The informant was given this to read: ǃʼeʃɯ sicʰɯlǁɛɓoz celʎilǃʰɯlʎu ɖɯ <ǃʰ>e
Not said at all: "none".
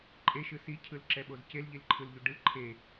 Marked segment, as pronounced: ǃʰ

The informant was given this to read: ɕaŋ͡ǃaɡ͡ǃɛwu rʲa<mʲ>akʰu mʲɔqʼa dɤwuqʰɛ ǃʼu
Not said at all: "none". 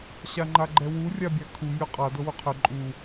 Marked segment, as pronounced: bʲ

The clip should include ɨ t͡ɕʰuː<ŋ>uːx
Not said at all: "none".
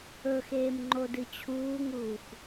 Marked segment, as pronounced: ŋ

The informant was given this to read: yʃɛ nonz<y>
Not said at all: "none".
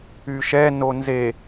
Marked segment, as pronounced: e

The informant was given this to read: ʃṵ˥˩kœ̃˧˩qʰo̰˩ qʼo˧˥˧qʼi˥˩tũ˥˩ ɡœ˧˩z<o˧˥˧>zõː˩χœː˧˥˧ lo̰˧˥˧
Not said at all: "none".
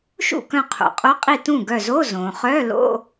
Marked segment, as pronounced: o˧˥˧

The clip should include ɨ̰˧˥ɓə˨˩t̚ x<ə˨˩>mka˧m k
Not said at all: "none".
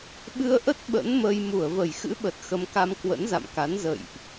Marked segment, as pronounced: ə˧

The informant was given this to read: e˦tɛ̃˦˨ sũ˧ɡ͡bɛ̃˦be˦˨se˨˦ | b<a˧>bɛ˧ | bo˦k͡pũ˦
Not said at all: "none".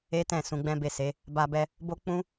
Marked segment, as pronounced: a˧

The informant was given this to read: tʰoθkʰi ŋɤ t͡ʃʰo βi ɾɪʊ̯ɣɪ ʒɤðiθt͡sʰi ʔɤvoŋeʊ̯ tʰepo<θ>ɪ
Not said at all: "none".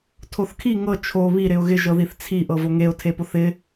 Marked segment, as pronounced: θ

